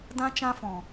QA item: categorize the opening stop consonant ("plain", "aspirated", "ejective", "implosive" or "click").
plain